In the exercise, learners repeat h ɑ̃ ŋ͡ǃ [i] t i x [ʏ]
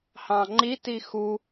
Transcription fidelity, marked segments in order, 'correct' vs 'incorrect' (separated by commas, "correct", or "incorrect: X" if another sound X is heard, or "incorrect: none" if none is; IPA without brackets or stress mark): correct, incorrect: u